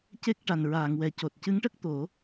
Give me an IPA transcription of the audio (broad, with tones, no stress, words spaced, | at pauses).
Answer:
ce˦˥k̚ ʈa˨˩nɹaː˨˩˨ŋwɛ˨˩˨co˨˩t̚ cɨ˧˥ŋʈə˦˥k̚ t̪o˨˩˦